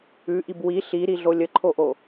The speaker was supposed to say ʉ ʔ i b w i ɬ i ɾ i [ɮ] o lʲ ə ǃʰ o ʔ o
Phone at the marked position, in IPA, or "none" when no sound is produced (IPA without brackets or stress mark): ɮ